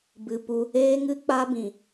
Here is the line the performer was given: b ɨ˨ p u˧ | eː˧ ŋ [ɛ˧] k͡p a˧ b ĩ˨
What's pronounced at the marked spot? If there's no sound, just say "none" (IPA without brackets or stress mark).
ɨ˧